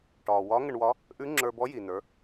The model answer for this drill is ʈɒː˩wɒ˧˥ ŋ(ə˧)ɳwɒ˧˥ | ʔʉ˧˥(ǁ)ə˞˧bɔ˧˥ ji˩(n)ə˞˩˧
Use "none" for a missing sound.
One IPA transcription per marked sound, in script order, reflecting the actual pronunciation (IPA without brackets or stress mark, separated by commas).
ə˧, ŋ͡ǁ, n